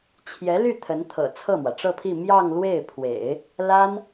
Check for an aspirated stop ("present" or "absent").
present